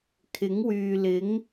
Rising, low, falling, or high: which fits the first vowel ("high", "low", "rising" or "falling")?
rising